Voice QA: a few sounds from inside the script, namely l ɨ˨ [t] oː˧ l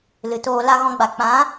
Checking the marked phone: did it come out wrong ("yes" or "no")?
no